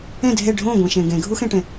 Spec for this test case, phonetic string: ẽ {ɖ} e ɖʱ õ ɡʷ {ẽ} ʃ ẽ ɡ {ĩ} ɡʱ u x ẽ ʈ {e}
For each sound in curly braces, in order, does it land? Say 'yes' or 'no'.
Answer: no, yes, no, no

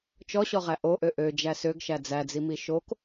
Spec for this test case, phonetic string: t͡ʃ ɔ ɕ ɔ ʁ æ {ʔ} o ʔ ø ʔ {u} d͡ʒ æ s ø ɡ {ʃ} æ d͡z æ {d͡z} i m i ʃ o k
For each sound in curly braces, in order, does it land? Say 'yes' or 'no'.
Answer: yes, no, yes, yes

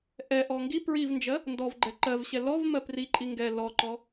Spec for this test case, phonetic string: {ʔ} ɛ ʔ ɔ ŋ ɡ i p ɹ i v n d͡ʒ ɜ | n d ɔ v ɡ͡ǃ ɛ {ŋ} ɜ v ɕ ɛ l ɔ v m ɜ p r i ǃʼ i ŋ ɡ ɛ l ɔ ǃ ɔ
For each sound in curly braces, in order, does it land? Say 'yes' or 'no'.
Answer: yes, no

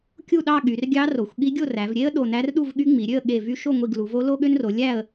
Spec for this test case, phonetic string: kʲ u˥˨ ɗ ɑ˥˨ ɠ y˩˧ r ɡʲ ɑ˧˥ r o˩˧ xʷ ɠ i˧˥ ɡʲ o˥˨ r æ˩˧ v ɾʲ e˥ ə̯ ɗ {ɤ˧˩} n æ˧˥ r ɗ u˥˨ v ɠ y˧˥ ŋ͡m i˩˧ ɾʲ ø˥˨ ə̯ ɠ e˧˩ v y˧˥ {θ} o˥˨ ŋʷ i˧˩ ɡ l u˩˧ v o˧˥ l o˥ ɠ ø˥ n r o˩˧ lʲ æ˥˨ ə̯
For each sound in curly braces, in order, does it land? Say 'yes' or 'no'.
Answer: no, no

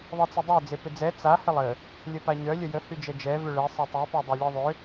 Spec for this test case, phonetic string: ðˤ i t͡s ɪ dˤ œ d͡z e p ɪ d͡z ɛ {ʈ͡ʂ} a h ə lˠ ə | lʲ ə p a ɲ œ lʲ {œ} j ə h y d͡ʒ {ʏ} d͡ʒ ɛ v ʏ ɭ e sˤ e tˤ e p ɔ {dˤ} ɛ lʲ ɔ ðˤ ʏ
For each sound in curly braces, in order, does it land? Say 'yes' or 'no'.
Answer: no, no, no, yes

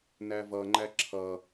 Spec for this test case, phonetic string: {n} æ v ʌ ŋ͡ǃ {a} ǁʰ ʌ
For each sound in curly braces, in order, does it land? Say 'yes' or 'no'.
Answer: yes, no

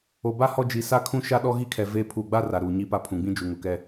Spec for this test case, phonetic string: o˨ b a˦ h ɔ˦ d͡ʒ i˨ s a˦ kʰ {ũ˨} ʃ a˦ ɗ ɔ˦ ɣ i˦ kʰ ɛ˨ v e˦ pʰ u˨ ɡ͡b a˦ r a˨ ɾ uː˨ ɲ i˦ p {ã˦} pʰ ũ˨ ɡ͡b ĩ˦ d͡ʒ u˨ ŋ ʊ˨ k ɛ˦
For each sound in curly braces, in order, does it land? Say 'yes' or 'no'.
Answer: no, no

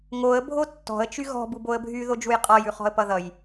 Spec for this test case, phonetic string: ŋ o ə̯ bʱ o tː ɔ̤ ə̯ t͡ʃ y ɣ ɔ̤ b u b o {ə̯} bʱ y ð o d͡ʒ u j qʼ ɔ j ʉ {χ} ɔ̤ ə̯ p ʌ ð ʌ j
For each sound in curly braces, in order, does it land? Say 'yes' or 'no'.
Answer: yes, yes

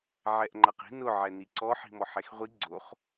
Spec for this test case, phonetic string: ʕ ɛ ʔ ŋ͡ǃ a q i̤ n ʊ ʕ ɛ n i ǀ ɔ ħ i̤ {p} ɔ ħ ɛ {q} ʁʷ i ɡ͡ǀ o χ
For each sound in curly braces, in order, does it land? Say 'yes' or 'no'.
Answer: no, no

